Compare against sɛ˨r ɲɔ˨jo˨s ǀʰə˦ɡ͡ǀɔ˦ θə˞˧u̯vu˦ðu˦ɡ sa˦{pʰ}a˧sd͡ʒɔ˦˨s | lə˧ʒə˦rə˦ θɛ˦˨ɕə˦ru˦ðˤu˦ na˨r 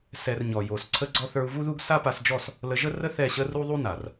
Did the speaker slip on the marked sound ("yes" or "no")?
yes